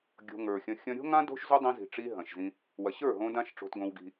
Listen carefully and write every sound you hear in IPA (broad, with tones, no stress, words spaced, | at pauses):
ɡʲo̤˧ŋə˞˨xʲɐ̃˧ xʲɐ̃˧ɾʲo̤˦ŋã˦ do̤˦ʃzo˦dˤĩ˧ zi̤˨ʈ͡ʂi˧ ɦɐ̃˨ʃzĩ˧ | wɐ˨ɕə˞˦˨ɦõ˧ dã˦ʃʈ͡ʂo̤˧tɡõ˧wɡi̤˧